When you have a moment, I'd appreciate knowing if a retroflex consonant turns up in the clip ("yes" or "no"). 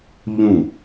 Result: no